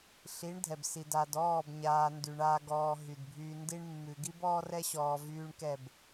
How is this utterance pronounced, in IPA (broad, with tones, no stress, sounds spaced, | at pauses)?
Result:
ɬ i˨˦ ɳ dʱ ɛ˨ b s i˨ d a˨ d ɔː˦˨ b ɲ aː˨ n d y˨ ɳ aː˨ ɡ ɔː˨ ɦ y˨ d bʱ yː˦ n d i˦ ɳ mː ʉ˨ ɡ i˦ b ɔː˦ r ɛ˦ ɕ ɔː˨ v yː˦ ɳ k ɛ˦˨ b